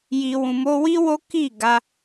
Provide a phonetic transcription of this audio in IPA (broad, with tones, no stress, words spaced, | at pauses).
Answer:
ji˨ wũ˨mo˧wi˦ wo˦ki˦˨ ɡa˧